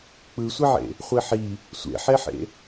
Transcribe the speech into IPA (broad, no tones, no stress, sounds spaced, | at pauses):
k͡p ɯ sʷ i ʕ ḛ | χʷ i ħ i | sʷ ḛ ħ e ħ ḛ